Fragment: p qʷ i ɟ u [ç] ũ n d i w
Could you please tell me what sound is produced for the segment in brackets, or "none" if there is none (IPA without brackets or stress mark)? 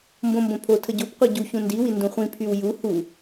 ç